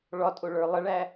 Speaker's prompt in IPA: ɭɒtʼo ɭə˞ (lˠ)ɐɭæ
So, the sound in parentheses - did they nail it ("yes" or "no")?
yes